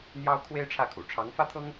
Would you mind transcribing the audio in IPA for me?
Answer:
n̪ j ɑ˥ ʊ̯ kʰ w e˥ ɪ̯ ʈ͡ʂʰ ä˥˩ kʰ ṵ˨˩ ʈ͡ʂʰ ɑ˧˥ ŋ f ä˥ t̪ʰ ɤ˥ ŋ

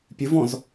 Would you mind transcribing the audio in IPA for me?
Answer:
pʲ ɨ v ɔ̃ z

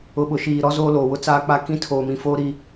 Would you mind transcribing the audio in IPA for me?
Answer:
ʊ˨ ɓ ʊ˨ ʃ iː˨ ɾ ɔ˦ z oː˦ l oː˨ w ʊ˦ t͡s aː˦ k͡p a˦ k ĩ˦ tʰ oː˨ m ĩ˨ f oː˦ ɾ i˦

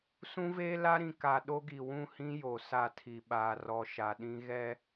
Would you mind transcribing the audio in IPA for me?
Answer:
s ũ˦ v eː˦ l a˦ ɾ ĩ˨ k a˨ ɗ o˦ ɡ i˨ w ũ˦˨ h ĩ˦ j o˨ s a˦˨ tʰ i˨ ɓ aː˨ r ɔ˨ ʃ a˨ ɗ ĩ˦ ɣ ɛ˦

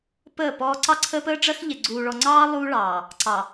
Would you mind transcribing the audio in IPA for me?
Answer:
p əː˦˨ p ɔː˦ ǀ ɑ˦ ǀʰ əː˦ p əː˦ ɖ͡ʐ ɜ˦ x ʎ ɪ˨ ɡ͡ǀ uː˨ ɭ ɔ˨ ŋ͡ǀ ɑː˦ lˠ uː˦ ɭ ɑː˨ | ǀ ɑ˨

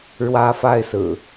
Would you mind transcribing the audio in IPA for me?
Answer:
ɻ w ä˦ f a˥˨ ɪ̯ s ɹ̩˨˩

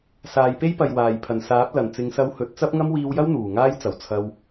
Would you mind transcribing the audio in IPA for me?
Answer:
s aː˨˧ j p e˥ j p ɐ˨ j w aː˨˩ j pʰ ɐ˨˩ n s aː˨˥ p̚ l ɐ˨˩ n t͡s ɪ˨˧ ŋ s ɐ˧ w h ɵ˨˥ t̚ t͡s ɐ˥ p̚ ŋ ɐ˥ m w iː˧ w j ɐ˥ w n̪ uː˨˩ ŋ aː˥ j t͡s ɐ˨ w t͡sʰ ɐ˧ w

